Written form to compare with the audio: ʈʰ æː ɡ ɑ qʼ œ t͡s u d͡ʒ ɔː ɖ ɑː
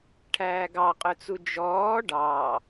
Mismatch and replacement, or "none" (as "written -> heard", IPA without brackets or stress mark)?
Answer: none